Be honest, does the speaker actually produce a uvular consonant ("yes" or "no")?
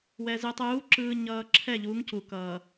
no